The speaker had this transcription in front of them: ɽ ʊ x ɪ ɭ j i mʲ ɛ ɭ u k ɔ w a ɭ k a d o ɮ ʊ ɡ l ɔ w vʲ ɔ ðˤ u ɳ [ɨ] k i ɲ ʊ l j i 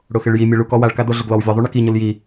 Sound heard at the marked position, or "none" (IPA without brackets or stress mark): ɪ